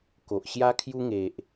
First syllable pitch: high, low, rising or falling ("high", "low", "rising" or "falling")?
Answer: low